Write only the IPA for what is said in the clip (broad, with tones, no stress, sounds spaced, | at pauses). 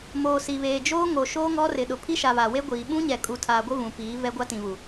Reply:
m oː˨ s i˨ β eː˨ d͡ʒ oː˦ ŋ o˨ ʃ oː˦ ŋ ɔ˦ r ɪ˨ ɗ ʊ˨ pʰ i˦ ʃ a˨ β a˨ w e˦ ɡʷ iː˨ ɓ ũ˦ ɲ ɛ˨ kʼ u˨ tʰ aː˨ ɡʷ ɪ˦ v ũ˨ p iː˨˦ v ɛ˦ ɡʷ a˦ t ĩ˨ β u˨